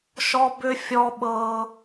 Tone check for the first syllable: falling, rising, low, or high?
high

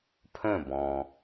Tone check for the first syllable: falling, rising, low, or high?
falling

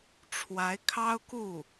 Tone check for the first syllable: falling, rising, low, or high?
rising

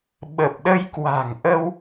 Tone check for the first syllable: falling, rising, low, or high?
low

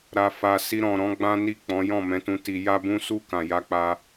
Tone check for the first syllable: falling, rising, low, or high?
low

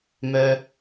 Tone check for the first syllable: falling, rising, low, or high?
high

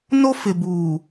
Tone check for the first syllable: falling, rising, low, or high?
high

